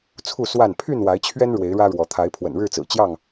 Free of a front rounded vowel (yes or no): no